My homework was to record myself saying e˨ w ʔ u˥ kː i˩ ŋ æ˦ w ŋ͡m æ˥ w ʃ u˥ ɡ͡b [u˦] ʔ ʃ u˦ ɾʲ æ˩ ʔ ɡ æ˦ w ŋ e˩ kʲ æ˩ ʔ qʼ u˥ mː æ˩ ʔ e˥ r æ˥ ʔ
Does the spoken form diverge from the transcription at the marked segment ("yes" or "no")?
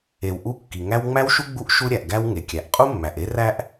no